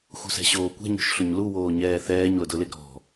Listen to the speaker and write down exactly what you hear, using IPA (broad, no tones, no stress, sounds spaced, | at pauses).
x ṳ s ɛ̤ ɕ oː kʷ ɛ̤ ɲ o̤ ʃ ɬ ʊ ɲ l u w oː ɲ ɛː θ ɛː ɲ l ʊ d ʊ l ɪ ɡ ɾ ɔ̤